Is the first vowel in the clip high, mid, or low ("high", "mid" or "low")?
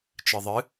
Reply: high